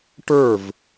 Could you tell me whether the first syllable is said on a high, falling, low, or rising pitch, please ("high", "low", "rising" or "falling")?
falling